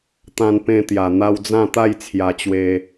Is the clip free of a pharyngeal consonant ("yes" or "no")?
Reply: yes